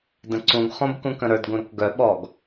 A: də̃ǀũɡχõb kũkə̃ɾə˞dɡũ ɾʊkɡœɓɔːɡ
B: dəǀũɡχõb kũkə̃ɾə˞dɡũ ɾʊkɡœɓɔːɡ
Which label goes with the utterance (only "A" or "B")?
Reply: A